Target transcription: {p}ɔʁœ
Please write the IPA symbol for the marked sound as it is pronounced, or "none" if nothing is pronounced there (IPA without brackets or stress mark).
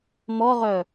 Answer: m